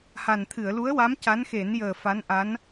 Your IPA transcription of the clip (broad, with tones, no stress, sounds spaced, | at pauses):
h a˨˩ n t̪ʰ ɨ˨˩˨ ə̯ l u˧˥ ə̯ w a˧˥ m c a˧˥ n x e˨˩˦ n j əː˨˩ f a˧˥ n ʔ a˧˥ n